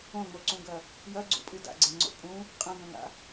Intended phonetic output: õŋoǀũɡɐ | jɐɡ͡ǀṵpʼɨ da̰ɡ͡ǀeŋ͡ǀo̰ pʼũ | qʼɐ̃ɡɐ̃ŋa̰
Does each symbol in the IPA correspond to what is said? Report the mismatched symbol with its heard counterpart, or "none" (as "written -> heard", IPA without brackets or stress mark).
none